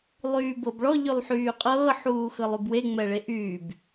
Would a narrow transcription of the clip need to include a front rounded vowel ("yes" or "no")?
yes